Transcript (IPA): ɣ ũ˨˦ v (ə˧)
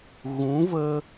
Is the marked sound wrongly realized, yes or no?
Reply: no